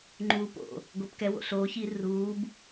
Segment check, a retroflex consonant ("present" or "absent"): absent